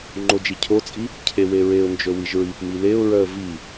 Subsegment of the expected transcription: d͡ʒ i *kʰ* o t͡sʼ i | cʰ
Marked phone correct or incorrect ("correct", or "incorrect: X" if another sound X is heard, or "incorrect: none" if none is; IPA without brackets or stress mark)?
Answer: incorrect: cʰ